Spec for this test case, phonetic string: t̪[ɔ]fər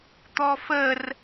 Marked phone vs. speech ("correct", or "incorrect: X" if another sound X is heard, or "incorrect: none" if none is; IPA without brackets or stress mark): correct